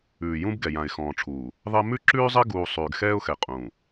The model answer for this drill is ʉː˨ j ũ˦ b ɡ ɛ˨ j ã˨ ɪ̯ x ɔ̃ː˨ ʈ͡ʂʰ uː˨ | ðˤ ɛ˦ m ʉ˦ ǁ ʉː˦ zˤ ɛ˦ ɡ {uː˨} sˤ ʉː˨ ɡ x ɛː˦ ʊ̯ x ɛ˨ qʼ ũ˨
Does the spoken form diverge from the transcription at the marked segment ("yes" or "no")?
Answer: no